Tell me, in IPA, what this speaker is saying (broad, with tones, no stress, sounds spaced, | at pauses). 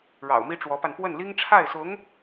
ɻ ɑ̰˨˩ ʊ̯ m i˥ ʈ͡ʂ w ɔ˧˥ p a˧ n p w ə˥˩ n l i˥ ŋ ʈ͡ʂʰ a˥˩ ɪ̯ s ʊ˧˥ ŋ